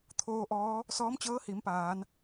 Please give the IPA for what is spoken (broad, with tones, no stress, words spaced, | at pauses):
t̪ʰoː˧ʔɔː˧˥ | sɔː˧˥mt͡ɕɤː˧˥ hi˩˧mpaː˩˧n